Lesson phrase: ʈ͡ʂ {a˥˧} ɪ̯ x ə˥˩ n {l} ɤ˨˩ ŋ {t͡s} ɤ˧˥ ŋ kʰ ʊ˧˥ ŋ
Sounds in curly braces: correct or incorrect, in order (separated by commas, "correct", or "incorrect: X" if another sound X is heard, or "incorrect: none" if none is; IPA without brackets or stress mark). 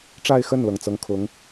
correct, correct, correct